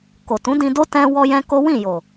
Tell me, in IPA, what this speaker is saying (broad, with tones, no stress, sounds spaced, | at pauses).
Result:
k o˨ t ũ˨˦ d ĩ˧ d o˦ t ɛ̃˧ w ɔ˦ j ɛ̃˦ k o˦ w ĩ˦˨ j o˨